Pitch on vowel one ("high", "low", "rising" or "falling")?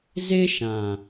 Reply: high